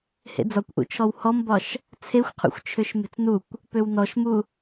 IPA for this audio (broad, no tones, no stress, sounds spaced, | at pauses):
h ḛ d͡z ɒ kʷ ʔ ṵ t͡ʃʰ ɔ w h ɔ m b ɒ ʃ | t͡sʰ e xʷ qʰ ṵ xʷ t͡ʃʰ ø ʃ m e̤ t͡s n u kʷ | p ø w n ɔ ʃ m u